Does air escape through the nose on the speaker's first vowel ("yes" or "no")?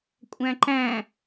yes